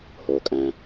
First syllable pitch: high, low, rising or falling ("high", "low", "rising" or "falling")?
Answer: low